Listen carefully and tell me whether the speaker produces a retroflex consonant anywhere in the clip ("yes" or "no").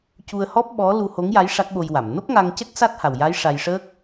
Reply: yes